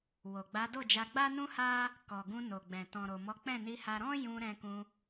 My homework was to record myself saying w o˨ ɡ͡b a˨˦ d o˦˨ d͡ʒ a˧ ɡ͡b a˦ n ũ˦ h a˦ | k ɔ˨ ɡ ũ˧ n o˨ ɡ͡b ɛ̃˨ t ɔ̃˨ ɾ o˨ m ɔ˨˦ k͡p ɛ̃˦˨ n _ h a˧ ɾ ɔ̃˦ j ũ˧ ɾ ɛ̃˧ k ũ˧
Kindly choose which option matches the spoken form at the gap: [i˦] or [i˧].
i˧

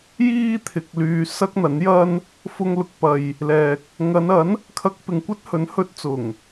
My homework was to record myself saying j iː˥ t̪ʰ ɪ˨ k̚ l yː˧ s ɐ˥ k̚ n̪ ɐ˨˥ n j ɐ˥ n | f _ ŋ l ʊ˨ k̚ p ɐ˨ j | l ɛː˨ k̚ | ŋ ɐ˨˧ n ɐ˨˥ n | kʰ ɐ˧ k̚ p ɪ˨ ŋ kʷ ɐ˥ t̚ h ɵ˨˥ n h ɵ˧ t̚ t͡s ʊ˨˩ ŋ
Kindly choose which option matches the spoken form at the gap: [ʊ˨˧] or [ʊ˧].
ʊ˧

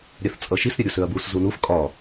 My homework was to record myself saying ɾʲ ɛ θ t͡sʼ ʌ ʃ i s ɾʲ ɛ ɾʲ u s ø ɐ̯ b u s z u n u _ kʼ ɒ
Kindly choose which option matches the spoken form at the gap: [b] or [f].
f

